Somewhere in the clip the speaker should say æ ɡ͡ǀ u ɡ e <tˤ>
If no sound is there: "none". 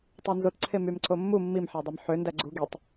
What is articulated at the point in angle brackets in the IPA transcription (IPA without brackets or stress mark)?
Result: tˤ